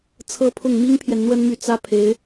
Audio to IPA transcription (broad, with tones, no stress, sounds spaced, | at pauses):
t͡sʰ ɤ˥ pʰ ʊ˥˩ ŋ m i˥ ŋ pʰ j ɛ˨ n n̪ w ə˥ n m y˥˩ t͡s ä˥ pʰ e˧˥ ɪ̯